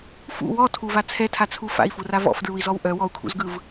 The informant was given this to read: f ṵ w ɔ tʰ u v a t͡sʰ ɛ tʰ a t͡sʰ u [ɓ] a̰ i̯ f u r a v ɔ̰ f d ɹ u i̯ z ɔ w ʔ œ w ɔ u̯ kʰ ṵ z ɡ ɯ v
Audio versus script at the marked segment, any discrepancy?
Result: yes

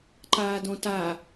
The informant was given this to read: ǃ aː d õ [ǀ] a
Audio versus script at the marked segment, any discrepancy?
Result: yes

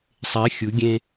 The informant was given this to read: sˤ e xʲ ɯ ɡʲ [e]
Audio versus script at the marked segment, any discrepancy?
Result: yes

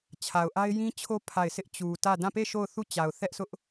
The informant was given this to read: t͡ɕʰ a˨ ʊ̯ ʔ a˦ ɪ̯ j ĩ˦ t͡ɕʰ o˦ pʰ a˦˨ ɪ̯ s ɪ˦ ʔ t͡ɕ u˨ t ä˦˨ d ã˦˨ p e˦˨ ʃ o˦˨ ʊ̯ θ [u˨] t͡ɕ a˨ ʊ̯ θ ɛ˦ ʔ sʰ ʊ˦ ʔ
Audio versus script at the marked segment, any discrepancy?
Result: yes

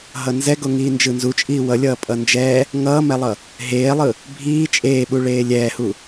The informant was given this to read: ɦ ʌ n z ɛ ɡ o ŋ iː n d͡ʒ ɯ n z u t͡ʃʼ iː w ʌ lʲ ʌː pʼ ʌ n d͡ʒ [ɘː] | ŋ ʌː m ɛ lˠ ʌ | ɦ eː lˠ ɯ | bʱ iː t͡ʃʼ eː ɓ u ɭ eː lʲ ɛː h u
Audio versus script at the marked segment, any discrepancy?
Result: yes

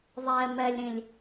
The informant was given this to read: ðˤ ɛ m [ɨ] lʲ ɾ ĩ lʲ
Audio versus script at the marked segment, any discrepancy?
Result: yes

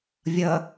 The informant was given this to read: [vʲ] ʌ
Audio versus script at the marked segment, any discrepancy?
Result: no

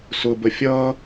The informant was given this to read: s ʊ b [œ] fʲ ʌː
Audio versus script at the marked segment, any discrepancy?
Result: yes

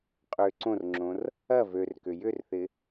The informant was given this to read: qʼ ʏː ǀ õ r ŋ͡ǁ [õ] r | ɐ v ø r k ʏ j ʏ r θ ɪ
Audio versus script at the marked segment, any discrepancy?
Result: no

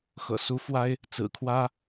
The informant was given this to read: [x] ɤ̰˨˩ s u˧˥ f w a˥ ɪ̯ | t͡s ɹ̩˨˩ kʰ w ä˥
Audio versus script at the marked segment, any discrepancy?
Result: no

